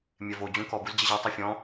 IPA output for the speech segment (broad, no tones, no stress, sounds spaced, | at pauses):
mʲ ɛ v o d͡ʑ ũ k ɔ b u z d͡ʑ ɛ ʑ a tˤ i fʲ ɔ̃